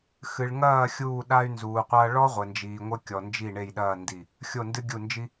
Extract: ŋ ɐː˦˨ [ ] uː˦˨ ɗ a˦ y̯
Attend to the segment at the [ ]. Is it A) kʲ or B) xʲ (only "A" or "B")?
B